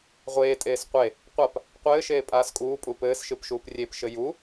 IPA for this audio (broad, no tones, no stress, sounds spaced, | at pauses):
ʁʷ eː tʼ eː s qʷ e | qʷ a p | qʷ ɘː ʃ eː pʼ aː s kʼ uː pʼ u p ɘː s ʃ ɨ p ʃ uː p rʲ e p ʃ ɘ j u